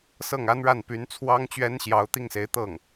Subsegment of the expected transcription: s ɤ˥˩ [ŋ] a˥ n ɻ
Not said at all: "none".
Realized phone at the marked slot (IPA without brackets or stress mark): ŋ